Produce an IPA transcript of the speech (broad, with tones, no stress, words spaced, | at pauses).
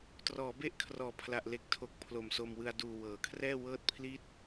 trɔː˩˦be˥˩ʔkʰrɔː˨˩pʰla˨˩ʔ le˨˩k̚tʰo˨˩k̚ pʰlo˨˩mso˧mwɯ˧a̯ duː˧wɤː˨˩kʰrɛː˥˩ wɤː˥˩t̚pʰli˥˩t̚